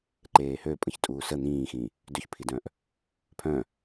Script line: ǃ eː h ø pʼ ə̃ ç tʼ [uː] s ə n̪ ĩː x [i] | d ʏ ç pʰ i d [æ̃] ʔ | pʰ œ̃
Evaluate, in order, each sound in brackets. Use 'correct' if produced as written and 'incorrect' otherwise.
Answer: correct, incorrect: ĩ, incorrect: œ̃

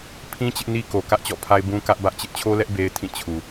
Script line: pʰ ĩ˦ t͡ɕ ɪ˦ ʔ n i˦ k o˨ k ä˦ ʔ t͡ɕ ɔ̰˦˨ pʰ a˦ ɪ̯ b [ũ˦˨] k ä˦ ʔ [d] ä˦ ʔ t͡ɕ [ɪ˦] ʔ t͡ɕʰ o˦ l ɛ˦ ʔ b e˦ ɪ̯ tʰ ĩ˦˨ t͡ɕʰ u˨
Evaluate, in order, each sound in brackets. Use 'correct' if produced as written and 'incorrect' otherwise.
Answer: incorrect: ũ˦, incorrect: b, correct

